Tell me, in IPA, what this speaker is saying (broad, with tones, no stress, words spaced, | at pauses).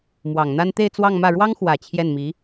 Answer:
mwɑ˨˩ŋ n̪a˥n t̪e˥˧ɪ̯ t͡swɑ˥˧ŋmä˥˩ ɻwɑ˥ŋxwä˨˩ t͡ɕʰjɛ˥˩nmi˧˥